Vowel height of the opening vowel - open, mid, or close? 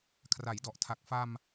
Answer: open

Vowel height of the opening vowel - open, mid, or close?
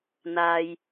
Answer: open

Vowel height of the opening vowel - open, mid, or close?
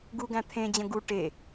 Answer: close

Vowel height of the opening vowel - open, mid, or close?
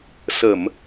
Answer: mid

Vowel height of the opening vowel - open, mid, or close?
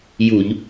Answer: close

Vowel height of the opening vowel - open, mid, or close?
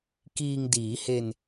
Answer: close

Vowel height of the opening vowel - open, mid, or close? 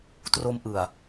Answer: mid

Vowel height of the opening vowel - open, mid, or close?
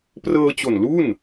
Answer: mid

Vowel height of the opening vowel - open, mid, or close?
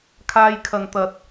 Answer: open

